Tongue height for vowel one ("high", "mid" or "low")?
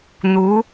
high